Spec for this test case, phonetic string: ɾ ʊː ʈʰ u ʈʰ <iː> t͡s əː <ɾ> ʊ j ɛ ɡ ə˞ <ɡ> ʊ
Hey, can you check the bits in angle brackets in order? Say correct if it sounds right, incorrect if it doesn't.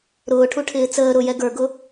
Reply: incorrect: ɪː, correct, correct

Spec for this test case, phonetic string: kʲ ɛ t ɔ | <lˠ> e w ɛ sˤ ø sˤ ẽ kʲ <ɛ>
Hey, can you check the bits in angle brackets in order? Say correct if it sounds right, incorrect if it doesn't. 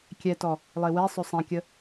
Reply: correct, incorrect: ə

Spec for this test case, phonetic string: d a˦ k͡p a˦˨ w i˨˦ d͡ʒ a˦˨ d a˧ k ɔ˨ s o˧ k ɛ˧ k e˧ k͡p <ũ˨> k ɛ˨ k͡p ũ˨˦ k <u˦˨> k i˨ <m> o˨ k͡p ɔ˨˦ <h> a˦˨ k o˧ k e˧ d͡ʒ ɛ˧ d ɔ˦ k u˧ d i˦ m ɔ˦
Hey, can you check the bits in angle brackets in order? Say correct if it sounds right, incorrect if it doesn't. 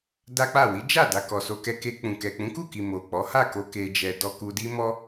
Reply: correct, correct, correct, correct

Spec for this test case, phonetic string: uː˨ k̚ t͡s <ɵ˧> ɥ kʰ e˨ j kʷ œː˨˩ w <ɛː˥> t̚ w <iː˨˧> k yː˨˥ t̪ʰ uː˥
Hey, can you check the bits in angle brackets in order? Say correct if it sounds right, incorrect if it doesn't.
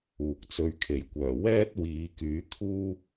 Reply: correct, correct, correct

